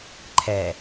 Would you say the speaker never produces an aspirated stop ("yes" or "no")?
no